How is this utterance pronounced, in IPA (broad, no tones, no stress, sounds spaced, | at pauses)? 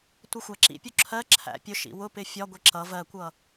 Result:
tʷ ʌ xʷ æ ǁ ḭ pʲ u ǁʰ ɜ ǁʰ æ̰ pʲ ʊ ʃ ḭ w ʊ p ɪ fʲ ɒ ɡʷ i ǁ ʌ v ɜ kʷ ʌ